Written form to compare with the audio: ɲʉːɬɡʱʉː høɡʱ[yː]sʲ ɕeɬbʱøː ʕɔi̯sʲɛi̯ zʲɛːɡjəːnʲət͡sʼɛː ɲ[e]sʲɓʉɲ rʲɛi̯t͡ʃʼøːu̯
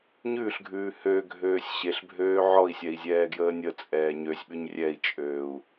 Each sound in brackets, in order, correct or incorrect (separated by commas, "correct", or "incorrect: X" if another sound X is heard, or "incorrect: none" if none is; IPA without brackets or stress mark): incorrect: øː, incorrect: ø